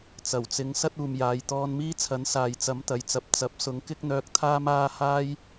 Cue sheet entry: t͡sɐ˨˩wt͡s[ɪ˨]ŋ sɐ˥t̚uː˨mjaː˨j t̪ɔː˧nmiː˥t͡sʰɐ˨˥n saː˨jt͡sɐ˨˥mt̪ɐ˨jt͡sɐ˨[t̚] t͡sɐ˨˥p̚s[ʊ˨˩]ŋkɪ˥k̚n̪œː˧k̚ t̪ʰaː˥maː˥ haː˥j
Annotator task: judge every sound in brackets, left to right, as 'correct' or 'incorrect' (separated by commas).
incorrect, incorrect, incorrect